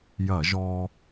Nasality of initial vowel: oral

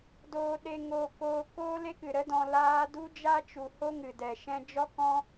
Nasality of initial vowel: oral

